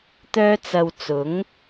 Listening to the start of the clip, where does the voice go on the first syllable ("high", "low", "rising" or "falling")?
high